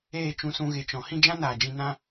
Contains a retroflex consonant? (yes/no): no